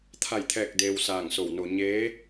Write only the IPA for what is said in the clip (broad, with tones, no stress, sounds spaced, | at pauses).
t̪ʰ a˥˨ j t̪ʰ ɛː˥˨ k̚ d eː˧ w s aː˧˩ ŋ s o˧˩ w n o˧ ɲ eː˧˥